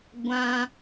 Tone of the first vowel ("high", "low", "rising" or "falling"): high